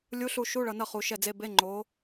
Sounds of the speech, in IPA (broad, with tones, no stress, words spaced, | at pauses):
lʲu˧˥˧ɬu˦˨ʃu˧˥˧ ɭʌ˨nʌ˦˨ χu˨˦ʃɛ˦˨d͡ze˧˥˧ be˧˥˧ŋ͡ǃo˨˦